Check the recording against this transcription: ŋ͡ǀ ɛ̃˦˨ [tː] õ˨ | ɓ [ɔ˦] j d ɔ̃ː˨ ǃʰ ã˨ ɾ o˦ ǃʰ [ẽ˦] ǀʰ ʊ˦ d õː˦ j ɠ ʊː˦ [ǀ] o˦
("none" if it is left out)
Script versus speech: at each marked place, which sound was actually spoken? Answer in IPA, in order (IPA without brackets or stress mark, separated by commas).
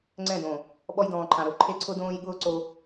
d, ɔ˦, e˦, ǀ